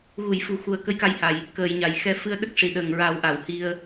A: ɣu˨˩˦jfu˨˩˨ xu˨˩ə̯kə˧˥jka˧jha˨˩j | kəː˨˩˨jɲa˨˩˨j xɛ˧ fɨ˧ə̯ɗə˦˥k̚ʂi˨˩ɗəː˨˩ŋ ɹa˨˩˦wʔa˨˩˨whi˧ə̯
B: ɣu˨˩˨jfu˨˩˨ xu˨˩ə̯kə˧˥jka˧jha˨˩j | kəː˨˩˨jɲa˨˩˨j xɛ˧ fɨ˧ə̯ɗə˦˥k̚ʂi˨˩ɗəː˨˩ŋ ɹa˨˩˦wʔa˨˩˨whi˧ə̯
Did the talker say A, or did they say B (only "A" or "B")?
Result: B